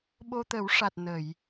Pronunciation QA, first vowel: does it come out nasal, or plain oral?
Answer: oral